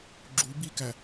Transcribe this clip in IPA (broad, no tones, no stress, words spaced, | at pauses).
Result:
ɡ͡ǁu bikæ